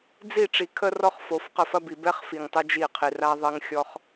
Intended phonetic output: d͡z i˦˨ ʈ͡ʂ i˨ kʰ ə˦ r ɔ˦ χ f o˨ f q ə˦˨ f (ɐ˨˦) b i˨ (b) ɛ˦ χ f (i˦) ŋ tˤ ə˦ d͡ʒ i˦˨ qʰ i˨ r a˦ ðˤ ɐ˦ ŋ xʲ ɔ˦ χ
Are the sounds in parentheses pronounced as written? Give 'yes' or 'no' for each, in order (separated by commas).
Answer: no, yes, no